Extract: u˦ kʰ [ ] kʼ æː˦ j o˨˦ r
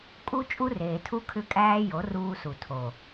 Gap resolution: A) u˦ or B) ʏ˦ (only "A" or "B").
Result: B